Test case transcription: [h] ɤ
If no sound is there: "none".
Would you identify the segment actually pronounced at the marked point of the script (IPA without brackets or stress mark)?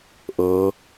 ʔ